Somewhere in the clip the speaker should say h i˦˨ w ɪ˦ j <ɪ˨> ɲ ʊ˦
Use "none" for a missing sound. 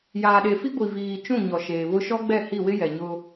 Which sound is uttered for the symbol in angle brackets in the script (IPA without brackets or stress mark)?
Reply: ɛ˨